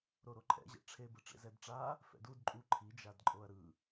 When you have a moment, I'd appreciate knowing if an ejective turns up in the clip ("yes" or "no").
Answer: yes